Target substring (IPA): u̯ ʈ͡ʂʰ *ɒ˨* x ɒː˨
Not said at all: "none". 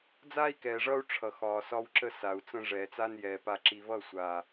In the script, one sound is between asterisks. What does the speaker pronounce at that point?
ʌ˨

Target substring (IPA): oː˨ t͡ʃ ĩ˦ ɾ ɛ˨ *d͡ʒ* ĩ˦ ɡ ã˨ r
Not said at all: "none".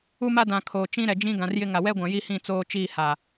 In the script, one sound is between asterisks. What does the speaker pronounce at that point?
d͡ʒ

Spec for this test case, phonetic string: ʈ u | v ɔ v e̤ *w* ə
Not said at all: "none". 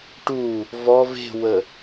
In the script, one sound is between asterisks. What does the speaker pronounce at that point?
w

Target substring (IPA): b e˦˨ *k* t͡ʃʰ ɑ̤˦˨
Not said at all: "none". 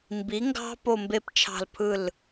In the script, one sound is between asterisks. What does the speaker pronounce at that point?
p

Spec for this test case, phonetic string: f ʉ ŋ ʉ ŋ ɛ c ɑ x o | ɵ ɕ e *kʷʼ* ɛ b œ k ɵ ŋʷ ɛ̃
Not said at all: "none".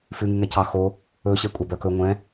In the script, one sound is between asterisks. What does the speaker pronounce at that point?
kʷʼ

